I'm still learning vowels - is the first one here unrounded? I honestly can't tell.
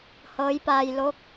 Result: yes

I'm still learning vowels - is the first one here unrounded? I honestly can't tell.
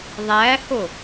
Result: yes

